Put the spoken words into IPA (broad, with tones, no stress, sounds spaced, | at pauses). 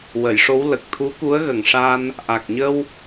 w ə˨˩˨ j ʂ o˧˥ w l ə˨˩ k̚ t̪ʰ u˧˥ k u˧˥ ə̯ ɣ ə˨˩ ŋ ʂ a˧ n | ʔ a˨˩ k̚ ɲ ə˧ w